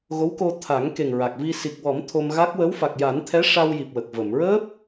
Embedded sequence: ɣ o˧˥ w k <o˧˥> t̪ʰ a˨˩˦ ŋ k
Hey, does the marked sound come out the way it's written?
no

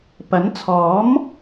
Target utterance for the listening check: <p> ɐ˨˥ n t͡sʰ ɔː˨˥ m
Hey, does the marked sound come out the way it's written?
yes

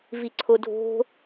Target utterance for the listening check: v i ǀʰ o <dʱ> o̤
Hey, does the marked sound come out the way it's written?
yes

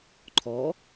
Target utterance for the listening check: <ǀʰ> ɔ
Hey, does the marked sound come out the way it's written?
no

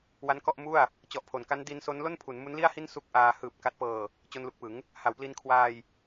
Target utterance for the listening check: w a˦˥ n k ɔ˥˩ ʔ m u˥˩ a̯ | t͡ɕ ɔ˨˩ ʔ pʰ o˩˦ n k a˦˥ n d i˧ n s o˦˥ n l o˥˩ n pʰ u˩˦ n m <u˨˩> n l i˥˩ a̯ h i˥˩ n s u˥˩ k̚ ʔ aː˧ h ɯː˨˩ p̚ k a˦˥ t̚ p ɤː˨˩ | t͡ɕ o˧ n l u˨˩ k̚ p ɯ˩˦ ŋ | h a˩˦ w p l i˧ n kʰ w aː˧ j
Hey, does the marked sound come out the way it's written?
no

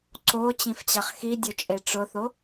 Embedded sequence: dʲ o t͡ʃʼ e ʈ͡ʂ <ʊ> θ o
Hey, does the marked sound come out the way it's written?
yes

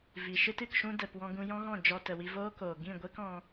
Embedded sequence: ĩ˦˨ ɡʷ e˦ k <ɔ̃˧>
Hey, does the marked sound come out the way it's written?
yes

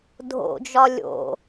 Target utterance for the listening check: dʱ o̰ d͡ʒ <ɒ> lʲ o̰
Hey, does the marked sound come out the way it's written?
yes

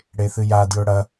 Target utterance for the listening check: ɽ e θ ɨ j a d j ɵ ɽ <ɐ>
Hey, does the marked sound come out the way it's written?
yes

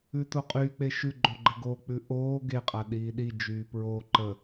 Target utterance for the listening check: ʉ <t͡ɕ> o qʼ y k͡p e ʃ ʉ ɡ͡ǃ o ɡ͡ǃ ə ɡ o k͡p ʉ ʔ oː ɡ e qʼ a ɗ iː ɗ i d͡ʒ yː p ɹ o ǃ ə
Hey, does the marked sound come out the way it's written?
no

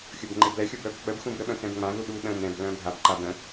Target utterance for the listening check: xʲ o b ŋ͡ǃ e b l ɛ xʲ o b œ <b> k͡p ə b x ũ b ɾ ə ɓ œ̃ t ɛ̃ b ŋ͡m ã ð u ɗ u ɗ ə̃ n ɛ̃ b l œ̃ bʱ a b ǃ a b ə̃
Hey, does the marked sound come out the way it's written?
yes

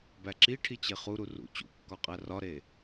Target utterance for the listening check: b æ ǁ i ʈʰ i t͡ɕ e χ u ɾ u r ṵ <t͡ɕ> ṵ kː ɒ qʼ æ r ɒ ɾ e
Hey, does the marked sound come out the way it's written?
yes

